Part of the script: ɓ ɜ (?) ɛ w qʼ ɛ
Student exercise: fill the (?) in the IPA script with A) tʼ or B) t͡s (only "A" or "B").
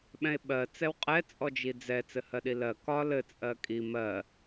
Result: B